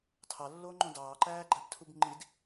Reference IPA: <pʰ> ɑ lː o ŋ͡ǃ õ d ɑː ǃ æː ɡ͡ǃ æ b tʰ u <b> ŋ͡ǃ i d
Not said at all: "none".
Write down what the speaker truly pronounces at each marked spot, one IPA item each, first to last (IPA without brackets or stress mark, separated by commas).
tʰ, b